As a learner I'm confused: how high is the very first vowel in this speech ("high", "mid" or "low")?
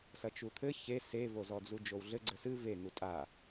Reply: low